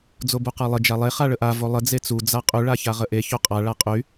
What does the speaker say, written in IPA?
d͡zobuqalˠə d͡ʒalˠe χaɭəʔa volˠə d͡zet͡su d͡zaqʼy ɭaçaʁəʔe çoqʼa ɭaqʼy

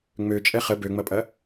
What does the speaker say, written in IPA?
ŋ͡møt͡ʃʼɛ χə bøŋ͡mɐpʼɐ

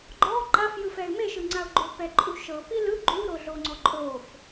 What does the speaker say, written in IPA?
ɡ͡ǃɔ ǃafjɯfɛɪ̯ meʃɯŋ͡ǀaʊ̯ ɡ͡ǃopɛǃʼuʃɤ pilɯ ɡ͡ǃuɾoɮoŋ͡ǀɔ ǃʼof

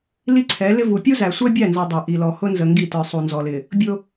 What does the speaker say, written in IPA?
li˦ǀʰɛ˨˦lɪ˦vu˨ pʲu˦zæ˨sʷɛ˦bʲæ˦˨ nzʌ˨ dˤæ˨ʔi˨lɔ˨ hʊ˦nzə˨ŋɡi˦˨tə˞˨ sˤu˨nzɔ˨lɪ˨ | bʲʊ˦

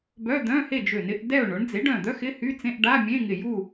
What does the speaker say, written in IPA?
bœ˧˥˧d̪œ̃˧˥˧he˥˨d͡ʒø˧˩ nɪ˧˥˧ʔdɛ˥˨ʊ̯ɳʊ˩˥ɳ d͡ze˩˥ɖœ̃˧˩d̪œ˧˥˧x ɪ˧˥˧hy˧˥˧t͡sẽ˧˥˧ʔ ɖa˧˥˧mʲẽ˧˥˧ŋɪ˧˩ju˥˨

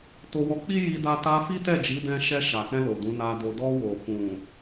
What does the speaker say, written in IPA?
to˧wɔ˧k͡pi˦ ji˧da˧ ta˧ fi˦tɛ˦˨d͡ʒi˨˦dɛ̃˧ ʃɛ˧ʃa˨kɛ̃˧ lo˨dũ˨˦na˧do˧ dɔ˧wo˨ fũ˨

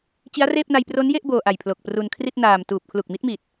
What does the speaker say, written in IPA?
t͡ɕi˦˥a̯reː˥˩p̚na˧j pro˦˥nje˥˩ʔ boː˧ʔa˨˩j pʰlo˨˩k̚pru˧n kʰri˥˩t̚naː˨˩m tuː˨˩p̚kʰlu˨˩k̚mi˦˥t̚mi˨˩t̚

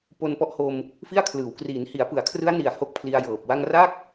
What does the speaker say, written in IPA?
po˧npɔ˦˥ʔho˧m | fi˥˩a̯kʰlɯː˩˦w kriː˩˦nhi˩˦a̯pɯ˩˦a̯kʰrɯ˦˥a̯ ni˨˩a̯ ho˥˩k̚pʰli˧a̯jɤː˨˩p̚wa˥˩ŋ ra˥˩k̚

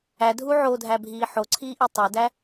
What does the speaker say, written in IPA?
ædʱu ʕodʱæbʱiː ħoǀʰiːʔi tˤedæ

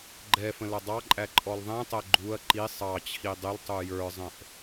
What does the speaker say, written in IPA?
ɡ͡ǃɛfə̃ lʌdˤɑǃʼæ ǃʼɔlðˤɛ̃tˤɛ ɡ͡ǃuɐ̯ ǃi sˤɑt͡ɕʰi dˤɪltˤu jə˞zˤə̃ʔ

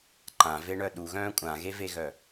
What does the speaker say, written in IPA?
ǃãveɳœ ɗuɣœ̃ː kʷʼãɣeveɣœ

